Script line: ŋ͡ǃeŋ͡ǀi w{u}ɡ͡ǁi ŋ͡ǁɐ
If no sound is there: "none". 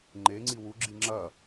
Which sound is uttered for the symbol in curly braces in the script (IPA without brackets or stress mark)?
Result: u